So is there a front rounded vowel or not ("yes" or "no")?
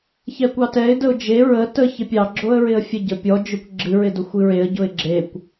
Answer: no